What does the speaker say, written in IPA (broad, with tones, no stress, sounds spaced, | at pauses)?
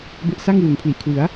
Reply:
b e˦˥ ʔ s a˥˩ ŋ w u˩˦ n pʰ l i˨˩ ʔ kʰ w ɯ˩˦ a̯